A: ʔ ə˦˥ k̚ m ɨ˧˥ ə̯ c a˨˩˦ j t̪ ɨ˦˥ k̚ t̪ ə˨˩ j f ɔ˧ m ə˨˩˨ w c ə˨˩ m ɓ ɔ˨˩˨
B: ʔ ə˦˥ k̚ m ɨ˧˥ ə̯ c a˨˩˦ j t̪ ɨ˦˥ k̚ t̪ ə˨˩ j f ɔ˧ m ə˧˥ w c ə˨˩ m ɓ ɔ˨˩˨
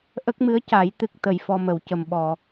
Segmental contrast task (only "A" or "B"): A